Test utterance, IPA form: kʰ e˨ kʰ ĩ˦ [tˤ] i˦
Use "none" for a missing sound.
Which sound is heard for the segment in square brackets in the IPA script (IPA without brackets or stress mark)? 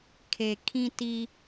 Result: t